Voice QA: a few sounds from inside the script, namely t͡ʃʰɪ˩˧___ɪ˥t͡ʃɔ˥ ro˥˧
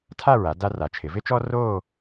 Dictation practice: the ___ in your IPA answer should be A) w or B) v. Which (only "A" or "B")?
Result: B